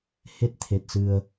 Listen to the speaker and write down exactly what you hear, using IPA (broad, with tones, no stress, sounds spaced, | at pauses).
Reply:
h e˦˥ t̚ t̪ʰ e˨˩ t̚ s ɨ˧ ə̯